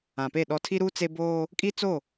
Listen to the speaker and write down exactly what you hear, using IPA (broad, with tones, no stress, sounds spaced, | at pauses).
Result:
ã˨ p e˦˨ ɗ ɔ˦ tʰ i˦ ɾ uː˦ t͡s e˦ b oː˦ | kʼ i˦ t͡s o˦˨